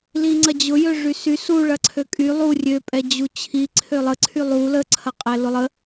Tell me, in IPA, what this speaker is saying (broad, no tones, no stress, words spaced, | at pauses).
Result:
liŋ͡ǀɐd͡ʑʊjø ʐysy suɭɐ ǀʰøkʼy lˠu rʲøpʼɛ d͡ʑut͡ɕʰi ǀʰølˠəǀʰy lˠu ləǀʰɐ qʼɛlʊlˠə